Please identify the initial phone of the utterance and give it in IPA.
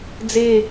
d͡z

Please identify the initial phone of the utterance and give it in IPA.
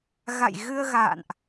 ɣ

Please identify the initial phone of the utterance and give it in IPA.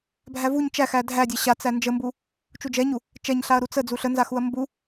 bʱ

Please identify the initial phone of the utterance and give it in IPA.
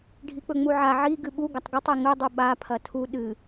ɖʱ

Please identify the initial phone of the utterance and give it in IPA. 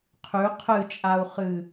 qʰ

